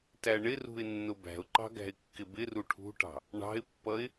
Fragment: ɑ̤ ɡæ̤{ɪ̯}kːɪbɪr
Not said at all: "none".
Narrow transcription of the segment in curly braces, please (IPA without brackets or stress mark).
ɪ̯